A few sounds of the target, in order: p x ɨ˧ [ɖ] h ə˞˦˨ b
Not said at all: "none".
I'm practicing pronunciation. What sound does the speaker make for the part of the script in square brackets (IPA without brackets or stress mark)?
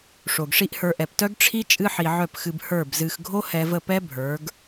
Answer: b